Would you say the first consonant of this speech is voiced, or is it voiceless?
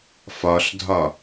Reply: voiceless